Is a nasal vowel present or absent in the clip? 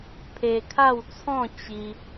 present